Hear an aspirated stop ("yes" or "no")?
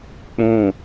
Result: no